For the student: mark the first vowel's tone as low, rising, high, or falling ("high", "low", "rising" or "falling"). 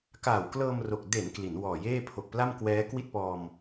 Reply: low